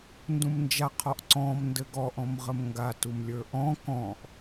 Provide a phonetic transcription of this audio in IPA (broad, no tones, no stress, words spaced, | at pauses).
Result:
ndũmnd͡ʒa qʰɔʔǀɔ̃m ndɘɡɔʔ ɔ̃mʁəmŋɡa tumlʲə˞ʔɔ̃ kɔ̃ʔ